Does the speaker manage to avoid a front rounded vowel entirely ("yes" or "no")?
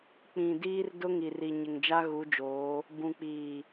yes